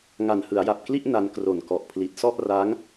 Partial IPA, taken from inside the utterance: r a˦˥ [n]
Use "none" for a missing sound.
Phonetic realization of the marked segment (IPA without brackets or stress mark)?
ŋ